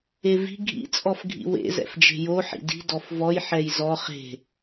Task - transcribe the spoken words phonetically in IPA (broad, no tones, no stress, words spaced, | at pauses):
evi̤ ɡʱḭ t͡sʼɔfɡʱḭwḛ zɛ̰fd͡ʒe̤jo ħḭdi̤ dɔfvɔj ħɛjzɔ χe̤